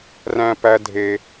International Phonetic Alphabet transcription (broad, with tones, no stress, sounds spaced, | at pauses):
r æ̃˨ p æ˨ dʱ e˨